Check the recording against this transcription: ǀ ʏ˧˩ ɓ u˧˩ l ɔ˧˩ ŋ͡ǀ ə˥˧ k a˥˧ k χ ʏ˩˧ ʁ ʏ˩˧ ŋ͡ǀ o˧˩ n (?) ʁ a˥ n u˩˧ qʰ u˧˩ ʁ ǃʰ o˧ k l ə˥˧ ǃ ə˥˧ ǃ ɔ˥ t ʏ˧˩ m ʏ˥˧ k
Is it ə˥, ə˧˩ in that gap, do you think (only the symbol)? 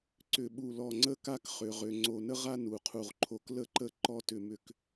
ə˥